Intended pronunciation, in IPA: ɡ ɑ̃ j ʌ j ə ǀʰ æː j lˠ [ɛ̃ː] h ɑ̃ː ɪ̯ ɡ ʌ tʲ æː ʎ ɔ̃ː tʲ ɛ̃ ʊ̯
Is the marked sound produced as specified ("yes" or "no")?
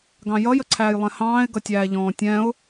no